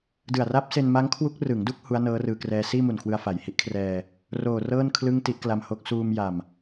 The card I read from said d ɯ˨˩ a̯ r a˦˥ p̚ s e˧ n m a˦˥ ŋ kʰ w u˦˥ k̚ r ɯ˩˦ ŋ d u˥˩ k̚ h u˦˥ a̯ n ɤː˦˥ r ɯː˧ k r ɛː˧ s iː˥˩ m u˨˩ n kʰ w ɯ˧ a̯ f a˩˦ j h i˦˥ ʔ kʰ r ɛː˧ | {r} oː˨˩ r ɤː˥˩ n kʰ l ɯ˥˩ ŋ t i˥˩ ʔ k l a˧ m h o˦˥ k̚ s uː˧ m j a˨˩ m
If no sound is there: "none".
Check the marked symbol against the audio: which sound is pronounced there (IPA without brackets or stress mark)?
r